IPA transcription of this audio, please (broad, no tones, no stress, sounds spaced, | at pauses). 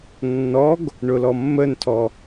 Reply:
nː ɔ ɡ | ɳ ʊ l ɔ mː ə n tʰ ɔ